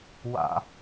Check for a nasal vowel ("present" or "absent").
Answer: absent